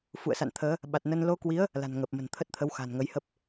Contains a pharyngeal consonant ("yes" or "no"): no